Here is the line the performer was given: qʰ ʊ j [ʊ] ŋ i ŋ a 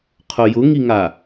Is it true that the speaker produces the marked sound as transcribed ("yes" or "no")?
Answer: yes